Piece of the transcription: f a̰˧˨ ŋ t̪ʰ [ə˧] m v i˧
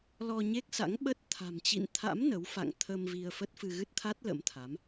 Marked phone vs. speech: correct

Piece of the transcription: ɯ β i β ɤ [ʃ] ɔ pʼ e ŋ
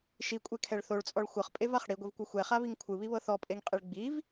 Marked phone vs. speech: incorrect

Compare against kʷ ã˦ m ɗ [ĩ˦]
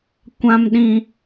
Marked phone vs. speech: correct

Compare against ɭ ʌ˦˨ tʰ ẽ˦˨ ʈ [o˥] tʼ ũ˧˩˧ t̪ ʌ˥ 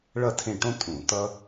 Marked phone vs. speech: incorrect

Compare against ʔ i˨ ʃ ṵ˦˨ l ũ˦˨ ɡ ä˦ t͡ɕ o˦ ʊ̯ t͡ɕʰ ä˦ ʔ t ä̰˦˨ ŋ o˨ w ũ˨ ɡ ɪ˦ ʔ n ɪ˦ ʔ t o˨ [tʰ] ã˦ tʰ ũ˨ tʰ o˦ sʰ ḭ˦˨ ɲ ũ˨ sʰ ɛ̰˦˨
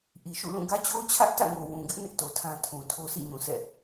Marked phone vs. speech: correct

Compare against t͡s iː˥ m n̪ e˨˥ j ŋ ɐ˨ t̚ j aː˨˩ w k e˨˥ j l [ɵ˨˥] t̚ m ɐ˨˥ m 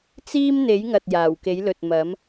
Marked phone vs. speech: incorrect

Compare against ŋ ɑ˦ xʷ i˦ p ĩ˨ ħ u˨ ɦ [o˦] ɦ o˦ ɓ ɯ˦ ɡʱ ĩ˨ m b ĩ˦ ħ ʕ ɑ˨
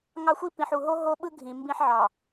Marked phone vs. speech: correct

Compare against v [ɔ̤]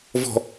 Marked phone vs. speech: correct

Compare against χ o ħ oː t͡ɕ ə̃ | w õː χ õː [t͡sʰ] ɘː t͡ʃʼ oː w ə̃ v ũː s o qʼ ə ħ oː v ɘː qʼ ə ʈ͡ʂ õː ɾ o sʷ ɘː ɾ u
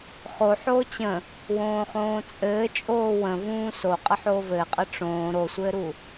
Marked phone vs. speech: incorrect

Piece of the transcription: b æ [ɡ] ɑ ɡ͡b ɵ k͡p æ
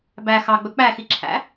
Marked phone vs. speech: incorrect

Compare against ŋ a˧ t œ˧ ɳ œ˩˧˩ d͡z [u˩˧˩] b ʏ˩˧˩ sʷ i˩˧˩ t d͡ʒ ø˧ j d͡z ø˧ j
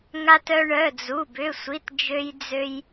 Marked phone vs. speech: correct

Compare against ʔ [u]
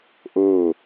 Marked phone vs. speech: incorrect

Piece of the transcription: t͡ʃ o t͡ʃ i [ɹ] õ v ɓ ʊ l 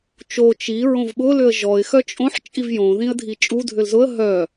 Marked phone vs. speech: correct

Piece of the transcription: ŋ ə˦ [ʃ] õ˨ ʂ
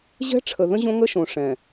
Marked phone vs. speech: correct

